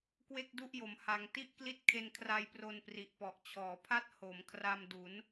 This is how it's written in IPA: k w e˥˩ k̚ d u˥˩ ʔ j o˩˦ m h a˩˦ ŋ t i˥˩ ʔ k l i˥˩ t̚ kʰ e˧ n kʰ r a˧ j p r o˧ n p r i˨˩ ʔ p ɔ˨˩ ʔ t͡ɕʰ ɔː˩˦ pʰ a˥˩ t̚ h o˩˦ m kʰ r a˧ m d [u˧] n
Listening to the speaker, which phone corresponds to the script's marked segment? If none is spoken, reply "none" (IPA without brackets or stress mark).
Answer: u˩˦